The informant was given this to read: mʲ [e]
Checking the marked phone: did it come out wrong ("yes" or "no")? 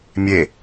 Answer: no